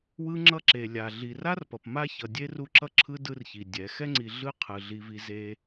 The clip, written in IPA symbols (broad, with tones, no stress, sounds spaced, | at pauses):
w ɯ˦ ŋ͡ǁ ʌ˦ ǁ e˨ lʲ a˨ ɮ i˨ r a˦ r p ʌ˨ p m a˦ ç ʌ˨ dʲ e˦ r u˦ ǁ ʌ˦ ǁʰ ɯ˦ d ɯ˦ r ç i˨ dʲ ɛ˨˦ x ɛ˦ ŋ͡ǀ i˨ ɮ ɯ˦ qʰ ɯ˨ ɮ i˦ v i˦ z e˦